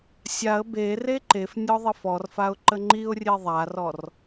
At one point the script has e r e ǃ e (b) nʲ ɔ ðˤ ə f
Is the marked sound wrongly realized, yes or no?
yes